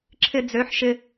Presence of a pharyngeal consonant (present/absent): present